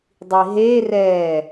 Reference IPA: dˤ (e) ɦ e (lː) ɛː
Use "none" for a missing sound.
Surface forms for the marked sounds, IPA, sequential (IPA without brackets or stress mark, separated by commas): i, r